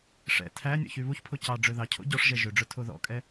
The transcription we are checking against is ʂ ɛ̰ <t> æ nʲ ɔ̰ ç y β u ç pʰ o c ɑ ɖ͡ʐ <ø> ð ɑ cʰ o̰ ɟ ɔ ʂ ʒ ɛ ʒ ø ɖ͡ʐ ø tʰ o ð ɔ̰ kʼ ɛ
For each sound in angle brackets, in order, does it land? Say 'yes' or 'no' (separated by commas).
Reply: no, yes